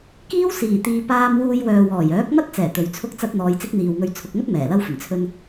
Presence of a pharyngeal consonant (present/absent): absent